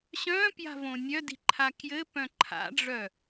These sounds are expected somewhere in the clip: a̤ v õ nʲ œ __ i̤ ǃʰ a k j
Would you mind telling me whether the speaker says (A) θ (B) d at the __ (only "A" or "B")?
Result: B